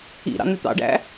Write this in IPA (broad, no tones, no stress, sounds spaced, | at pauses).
ḭ ɾ ɑ̰ n̪ ɪ t̪ ɑ̰ ɖ æ̰